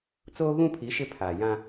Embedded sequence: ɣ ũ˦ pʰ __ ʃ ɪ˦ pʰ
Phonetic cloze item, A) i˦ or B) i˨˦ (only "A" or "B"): B